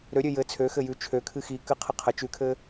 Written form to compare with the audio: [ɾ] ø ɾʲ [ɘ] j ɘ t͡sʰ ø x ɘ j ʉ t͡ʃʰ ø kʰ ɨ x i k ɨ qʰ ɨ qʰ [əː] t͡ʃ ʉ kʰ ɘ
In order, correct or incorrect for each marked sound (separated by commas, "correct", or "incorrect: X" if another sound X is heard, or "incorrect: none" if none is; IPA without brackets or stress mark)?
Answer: correct, incorrect: ø, incorrect: ə